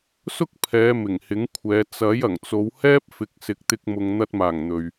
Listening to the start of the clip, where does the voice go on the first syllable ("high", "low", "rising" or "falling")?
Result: high